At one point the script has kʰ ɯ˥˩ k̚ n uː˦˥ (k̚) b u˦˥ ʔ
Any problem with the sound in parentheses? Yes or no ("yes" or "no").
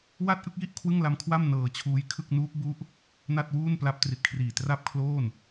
no